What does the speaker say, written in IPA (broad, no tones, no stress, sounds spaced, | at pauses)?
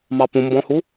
m ɑ p ũ m b ɔ̃ h u